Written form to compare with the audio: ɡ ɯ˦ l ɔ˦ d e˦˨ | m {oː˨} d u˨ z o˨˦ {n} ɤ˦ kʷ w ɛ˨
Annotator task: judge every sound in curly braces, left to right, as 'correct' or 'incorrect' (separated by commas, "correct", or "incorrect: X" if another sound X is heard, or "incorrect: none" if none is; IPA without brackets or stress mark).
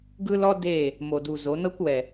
incorrect: o˨, correct